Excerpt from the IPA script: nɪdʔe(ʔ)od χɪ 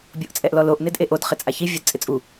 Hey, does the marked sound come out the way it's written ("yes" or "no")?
yes